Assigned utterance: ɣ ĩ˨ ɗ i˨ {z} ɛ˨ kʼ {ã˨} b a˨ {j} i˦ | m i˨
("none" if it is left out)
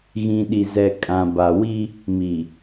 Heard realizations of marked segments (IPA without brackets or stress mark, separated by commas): z, ã˨, w